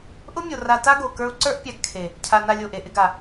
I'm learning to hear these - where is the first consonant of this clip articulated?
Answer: throat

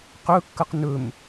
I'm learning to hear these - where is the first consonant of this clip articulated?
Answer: uvula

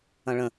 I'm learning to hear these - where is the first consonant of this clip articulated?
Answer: retroflex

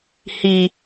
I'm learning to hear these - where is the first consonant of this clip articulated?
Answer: throat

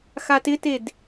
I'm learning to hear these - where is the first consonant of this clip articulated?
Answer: velum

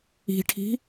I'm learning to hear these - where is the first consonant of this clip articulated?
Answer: retroflex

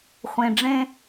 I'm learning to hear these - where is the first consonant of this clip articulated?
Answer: uvula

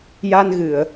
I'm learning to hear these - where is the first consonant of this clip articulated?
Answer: palate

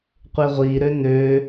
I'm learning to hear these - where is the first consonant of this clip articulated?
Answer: uvula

